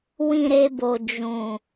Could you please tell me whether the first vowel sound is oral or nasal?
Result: nasal